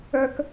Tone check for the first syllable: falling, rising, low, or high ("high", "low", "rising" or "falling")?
high